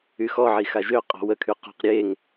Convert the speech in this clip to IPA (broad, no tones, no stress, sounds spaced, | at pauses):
y x ɔ ʕ i x a ʒ ø qʼ ɔ̤ w ə kʰ y q ɔ̤ q ɾʲ e ŋ